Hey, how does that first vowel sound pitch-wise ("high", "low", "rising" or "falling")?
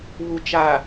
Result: low